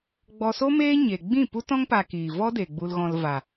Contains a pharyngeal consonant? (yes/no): no